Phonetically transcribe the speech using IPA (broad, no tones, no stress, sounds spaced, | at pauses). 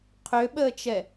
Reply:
qʰ ø ɓ əː t͡ʃ ɛ